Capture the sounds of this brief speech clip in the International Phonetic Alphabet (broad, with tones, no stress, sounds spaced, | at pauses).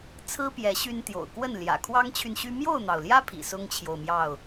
t͡sʰ ɹ̩˦ p j ɛ˨˦ ɕ y˦ n t̪ j o̰˨˩ ʊ̯ k w ə˥˨ n l j ä̰˨˩ kʰ w ɑ˦ ŋ t͡ɕʰ y˨ n ɕ y˦ m j o˥˨ ʊ̯ n̪ ɑ˩ ʊ̯ l j ä˦ pʰ ḭ˨˩ s ʊ˦ ŋ t͡ɕʰ j o˨ ʊ̯ m j ɑ˥˨ ʊ̯